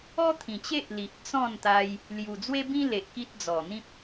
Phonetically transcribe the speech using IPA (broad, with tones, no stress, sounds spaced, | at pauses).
ɔ˦ t̪ʰ ĩ˨˩ t͡ɕ e˦ ʔ l i˨ ʔ t͡s ɔ̃˥˧ n t̪ a˧ j | l j u˨˩ d͡z w e˦ b ĩ˦ l e˨ ʔ k i˦ t̚ d͡z ɔ˨˩ n̪ ĩ˦ p̚